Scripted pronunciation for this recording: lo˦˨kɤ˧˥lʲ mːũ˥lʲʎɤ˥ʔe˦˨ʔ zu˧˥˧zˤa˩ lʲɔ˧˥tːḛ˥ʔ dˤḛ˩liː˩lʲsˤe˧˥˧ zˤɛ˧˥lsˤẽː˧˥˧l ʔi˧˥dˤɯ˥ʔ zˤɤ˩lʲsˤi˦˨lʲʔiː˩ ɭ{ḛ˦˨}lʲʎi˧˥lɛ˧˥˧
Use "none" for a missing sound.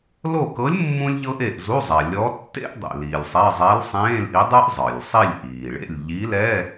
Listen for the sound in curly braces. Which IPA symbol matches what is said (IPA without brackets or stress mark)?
ḛ˦˨